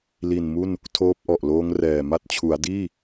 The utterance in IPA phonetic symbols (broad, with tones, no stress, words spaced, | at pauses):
li˨˩n mu˥˩n | tʰoː˦˥p̚ʔɔ˨˩ʔloː˦˥ŋrɛː˨˩ ma˦˥t̚t͡ɕʰu˩˦a̯diː˥˩